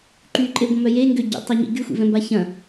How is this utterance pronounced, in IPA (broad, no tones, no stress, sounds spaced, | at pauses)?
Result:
ǃ y ǃʼ e ɡʷ ɐ̃ m œ j e ŋ ɡ ø ɟ ḭ tˤ ɐ ɲ ḭ ɡ y xʷ ḭ v ɛ̃ m b a ç ɐ̃